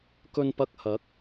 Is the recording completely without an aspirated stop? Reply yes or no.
yes